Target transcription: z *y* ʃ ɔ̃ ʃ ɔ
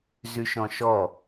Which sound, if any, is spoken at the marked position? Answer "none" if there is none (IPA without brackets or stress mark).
y